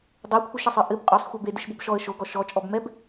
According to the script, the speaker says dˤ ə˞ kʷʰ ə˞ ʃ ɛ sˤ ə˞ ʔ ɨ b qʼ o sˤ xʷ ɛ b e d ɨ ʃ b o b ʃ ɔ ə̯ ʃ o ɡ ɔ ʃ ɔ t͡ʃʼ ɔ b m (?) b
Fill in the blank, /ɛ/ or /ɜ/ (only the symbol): ɛ